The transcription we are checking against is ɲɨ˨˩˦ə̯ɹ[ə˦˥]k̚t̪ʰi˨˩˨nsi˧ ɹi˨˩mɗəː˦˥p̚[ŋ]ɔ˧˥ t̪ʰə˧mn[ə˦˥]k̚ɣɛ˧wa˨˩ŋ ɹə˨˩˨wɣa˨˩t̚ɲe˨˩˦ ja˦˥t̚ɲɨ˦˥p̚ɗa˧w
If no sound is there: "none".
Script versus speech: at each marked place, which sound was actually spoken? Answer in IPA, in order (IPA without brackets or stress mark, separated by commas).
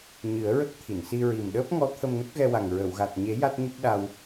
ə˦˥, ŋ, ə˦˥